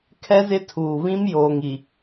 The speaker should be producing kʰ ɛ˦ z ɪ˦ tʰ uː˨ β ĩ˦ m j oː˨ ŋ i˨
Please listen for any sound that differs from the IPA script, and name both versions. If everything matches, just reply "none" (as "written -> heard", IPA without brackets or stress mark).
none